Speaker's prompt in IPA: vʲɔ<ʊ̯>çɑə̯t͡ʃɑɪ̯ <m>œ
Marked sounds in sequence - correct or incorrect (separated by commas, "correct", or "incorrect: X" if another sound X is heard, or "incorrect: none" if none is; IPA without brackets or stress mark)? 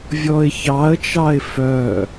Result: incorrect: ɪ̯, incorrect: f